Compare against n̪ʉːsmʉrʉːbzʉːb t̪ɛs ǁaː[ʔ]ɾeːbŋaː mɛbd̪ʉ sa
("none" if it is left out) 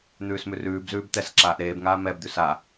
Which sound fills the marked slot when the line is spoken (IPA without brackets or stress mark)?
ʔ